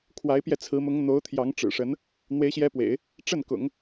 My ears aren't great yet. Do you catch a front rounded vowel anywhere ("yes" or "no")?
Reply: no